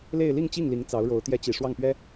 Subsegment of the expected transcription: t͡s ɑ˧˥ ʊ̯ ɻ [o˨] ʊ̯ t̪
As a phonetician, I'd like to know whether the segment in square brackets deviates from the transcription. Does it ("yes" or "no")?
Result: yes